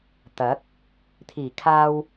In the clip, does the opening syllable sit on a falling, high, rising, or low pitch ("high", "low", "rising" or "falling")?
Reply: rising